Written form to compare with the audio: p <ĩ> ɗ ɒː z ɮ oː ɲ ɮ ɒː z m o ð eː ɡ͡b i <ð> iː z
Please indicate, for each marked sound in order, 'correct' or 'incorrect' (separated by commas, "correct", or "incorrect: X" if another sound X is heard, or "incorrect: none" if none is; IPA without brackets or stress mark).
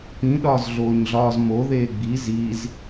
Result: correct, incorrect: z